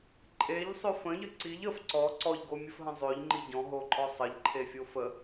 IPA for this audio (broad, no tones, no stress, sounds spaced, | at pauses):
ǃʼ e ʎ sˤ ø f ə̃ ʎ ə ǀ i ʎ ə f ǀ ɔ ǀ ɔ ʎ ɡ o mʲ ə f ɦ ə̃ zˤ ø ʎ ŋ͡ǃ i ɟ ɔ̃ ɦ o ǃʼ ɔ sˤ ə ʎ ǃʰ e fʲ o f ə